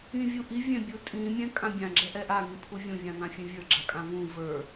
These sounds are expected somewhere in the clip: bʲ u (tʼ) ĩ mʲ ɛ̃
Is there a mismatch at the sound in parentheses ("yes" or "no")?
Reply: no